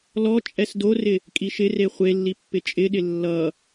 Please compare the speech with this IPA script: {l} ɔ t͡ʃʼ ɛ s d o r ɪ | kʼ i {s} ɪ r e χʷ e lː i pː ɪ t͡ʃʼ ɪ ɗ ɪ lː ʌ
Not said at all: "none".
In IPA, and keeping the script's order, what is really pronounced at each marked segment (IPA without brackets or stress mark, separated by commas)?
l, ʃ